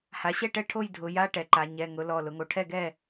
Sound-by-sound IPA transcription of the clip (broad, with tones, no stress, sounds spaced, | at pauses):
h a˩˥ ɕ ɛ˥˨ ʈ ɛ˥˨ ʈʰ o˥˨ j dʱ ʊ˩˧ j a˧˥˧ ʈ ɛ˩˧ ǃ a˩˧ ɲ ɛ˩˧˩ ŋ ʊ˩˥ l ɔ˩˧˩ l ʊ˩˧ ŋ o˩˧ ʈʰ ɛ˥˨ ɡ ɛ˥˨